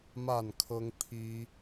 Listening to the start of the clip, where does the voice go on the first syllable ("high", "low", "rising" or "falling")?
falling